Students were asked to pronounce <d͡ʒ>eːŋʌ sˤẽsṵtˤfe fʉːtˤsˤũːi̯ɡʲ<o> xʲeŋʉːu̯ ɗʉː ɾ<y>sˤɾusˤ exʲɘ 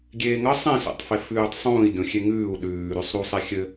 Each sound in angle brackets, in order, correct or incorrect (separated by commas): incorrect, incorrect, correct